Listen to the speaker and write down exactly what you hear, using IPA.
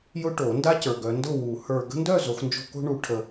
j ʊ˦ ʈ o˨˩˦ n d a˦ c ə˞˨ ɡ œ˨˦ n d ʊ˥˨ w u˨˩˦ h ə˞˨ ɡ ə̤˦ n d œ˥˨ z o˨˦ x n d͡ʒ o̤˦ k o̤˦ ɳ u˨˦ ʈʰ ə˨

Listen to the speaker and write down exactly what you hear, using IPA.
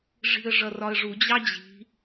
ʐ i̤ ə̯ ʐ ʌ r ɒ ə̯ ʐ u d͡ʑ ɑ d͡ʑ i̤

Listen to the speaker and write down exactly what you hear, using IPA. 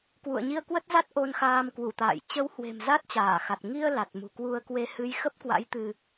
k w ṵ˧˨ ə̯ ɲ i˧ ə̯ k w ə˦˥ t̚ z a˦˥ t̚ ʔ o˧ n x aː˧ m k w u˧˩ t̪ a̰ː˧˨ j t͡ɕ ə˨˦ w h w e̤˨˩ m z a˦˥ t̚ t͡ɕ aː˧˩ x a˨˩ t̚ ŋ i˧ ə̯ l a˨˩ t̚ m ṳ˨˩ k w u˧ ə̯ k w e˧ h ɨ˨˦ j x ə˦˥ p̚ k w a̰˧˥ j t̪ ɨ˧

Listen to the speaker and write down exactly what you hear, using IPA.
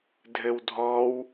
dʱ ɘ w dʱ ɔ w

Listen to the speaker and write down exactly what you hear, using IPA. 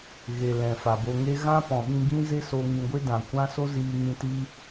ɣ e˨ l ɛ̃˨ f a˨ b o˧ ŋ e˦ ɣ ã˦ p ɔ̃˨ ɓ ĩ˧ ɡ ĩ˦ z e˦ s o˧ ŋ ĩ˧ ɡʷ e˦ d ã˨ kʷ ã˦ s o˦ z iː˧ ŋ ĩ˧ t i˦

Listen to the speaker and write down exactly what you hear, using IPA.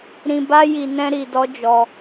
ɾ ĩ˨ b a˧ j i˨ n ɛ̃˧ ɾ i˨ d ɔ˨˦ d͡ʒ ɔ˧

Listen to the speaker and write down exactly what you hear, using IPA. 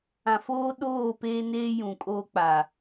ã˨ f oː˦ ɗ oː˦˨ p eː˦ n eː˦ j ũ˨ kʼ oː˦ k͡p a˨

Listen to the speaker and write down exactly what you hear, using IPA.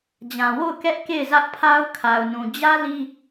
d͡ʑ ã˨ w o˦˨ ʊ̯ k ɛ˦ ʔ k e˦˨ ɪ̯ z ä˦ ʔ pʰ a˦ ʊ̯ kʰ a˨ ʊ̯ n ũ˨ d͡ʑ ä˦ l i˦

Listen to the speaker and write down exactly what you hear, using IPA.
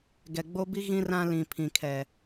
ɡ ɛ˨ ɡ͡b o˦ b i˦ ɣ ĩ˦ r ã˦ l ĩ˨ pʰ ĩ˨ kʰ ɛ˨

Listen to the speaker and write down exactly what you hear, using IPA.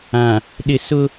ã˨ | ɗ ɪ˨ s ʊ˦

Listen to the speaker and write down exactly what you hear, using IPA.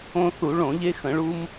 õ˧ θ u˧˩˧ ɭ õ˧˩˧ ʎ e˧ x ə̃˧˩˧ ɭ u˧ m

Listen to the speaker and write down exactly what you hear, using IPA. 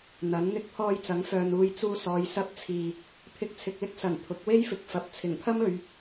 n̪ ɐ˨˥ n n̪ ɪ˧ k̚ pʰ ɔː˧ j t͡s ɐ˨˥ ŋ f œː˨ n uː˧ j t͡s uː˧ s ɔː˨˧ j s ɐ˧ p̚ t͡sʰ iː˨ | pʰ ɪ˧ k̚ t͡sʰ ɪ˨ k̚ l ɪ˥ k̚ s ɐ˨˩ n pʰ ʊ˨˥ k̚ w e˥ j f ɪ˨ k̚ f ɐ˨˥ p̚ t͡sʰ ɪ˨˩ ŋ pʰ ɐ˥ m ɵ˨˧ ɥ

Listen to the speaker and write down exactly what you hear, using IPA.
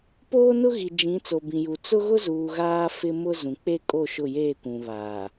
p oː˦ n ʊ˦ ɣ i˨ d͡ʒ ĩ˨˦ t͡s o˨ b ĩ˨ j u˨ t͡s ʊ˦ ɣ ʊ˦ z uː˨ ɣ aː˦ f ɪ˦ m ʊ˦ z ũ˨ k͡p e˦ kʼ o˦˨ ʃ ʊ˦˨ j eː˦˨ kʷ ũ˨ β aː˨

